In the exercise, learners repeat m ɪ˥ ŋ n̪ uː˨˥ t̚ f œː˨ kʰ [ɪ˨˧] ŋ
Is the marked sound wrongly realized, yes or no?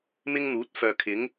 yes